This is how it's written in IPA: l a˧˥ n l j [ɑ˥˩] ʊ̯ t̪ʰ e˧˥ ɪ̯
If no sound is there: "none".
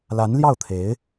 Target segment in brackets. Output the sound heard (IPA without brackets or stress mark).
ɑ˥˩